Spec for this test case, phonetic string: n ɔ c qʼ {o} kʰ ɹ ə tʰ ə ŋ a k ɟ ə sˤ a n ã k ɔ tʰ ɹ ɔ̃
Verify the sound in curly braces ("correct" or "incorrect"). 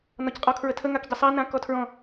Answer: incorrect